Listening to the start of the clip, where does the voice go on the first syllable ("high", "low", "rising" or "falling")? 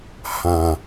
low